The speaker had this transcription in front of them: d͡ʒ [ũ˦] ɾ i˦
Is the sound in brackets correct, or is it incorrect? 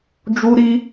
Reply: incorrect